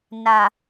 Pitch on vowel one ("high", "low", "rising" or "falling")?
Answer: low